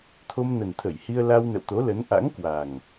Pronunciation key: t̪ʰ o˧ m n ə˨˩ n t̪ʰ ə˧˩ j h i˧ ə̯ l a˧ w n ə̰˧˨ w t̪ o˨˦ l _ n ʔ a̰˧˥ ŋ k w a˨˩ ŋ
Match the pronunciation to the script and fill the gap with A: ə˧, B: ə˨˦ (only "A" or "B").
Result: B